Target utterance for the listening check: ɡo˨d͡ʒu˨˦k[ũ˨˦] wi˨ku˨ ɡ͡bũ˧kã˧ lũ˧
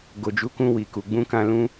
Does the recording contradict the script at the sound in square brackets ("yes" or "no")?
yes